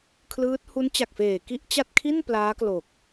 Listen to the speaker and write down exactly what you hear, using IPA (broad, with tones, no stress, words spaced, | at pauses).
kʰlɯː˦˥t̚ hu˦˥nt͡ɕa˨˩k̚feː˨˩ ki˥˩ʔt͡ɕa˥˩t̚ kʰi˥˩n plaː˦˥klo˨˩k̚